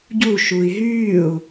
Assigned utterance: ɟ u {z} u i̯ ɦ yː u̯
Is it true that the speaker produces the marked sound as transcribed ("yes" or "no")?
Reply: no